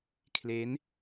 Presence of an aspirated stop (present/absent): present